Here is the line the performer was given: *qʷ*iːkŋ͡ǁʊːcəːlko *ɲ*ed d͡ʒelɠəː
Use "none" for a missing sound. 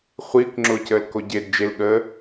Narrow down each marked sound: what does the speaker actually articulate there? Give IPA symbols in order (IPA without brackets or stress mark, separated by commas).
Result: χʷ, ɟ